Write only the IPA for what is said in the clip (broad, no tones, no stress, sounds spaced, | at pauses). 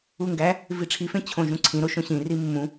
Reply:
u ŋ ɡ æ | v i ʈ͡ʂʰ i f ẽ t͡ɕʰ õ ʒ ũ ǀʰ ĩ ɾ o ʃ õ ɕ ĩ r i mː ũ